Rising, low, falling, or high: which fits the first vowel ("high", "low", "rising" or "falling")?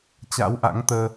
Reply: rising